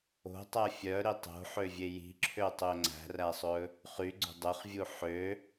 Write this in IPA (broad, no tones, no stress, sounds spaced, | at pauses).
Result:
o̤ tˤ æ fʲ œ ɾ i tˤ o̤ ħ ø vʲ e j i̤ ǁʰ ø tˤ ø ŋ͡ǀ æ̤ r æ sˤ ɵ | χ y ɡ͡ǀ o̤ dˤ ø χ vʲ u ħ ø